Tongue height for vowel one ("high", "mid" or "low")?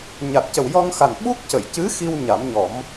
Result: low